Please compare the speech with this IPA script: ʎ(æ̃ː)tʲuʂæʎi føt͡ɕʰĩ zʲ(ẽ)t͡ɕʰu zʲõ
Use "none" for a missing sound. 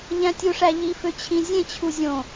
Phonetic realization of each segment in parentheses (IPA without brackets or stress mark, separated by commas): æ̃, ẽ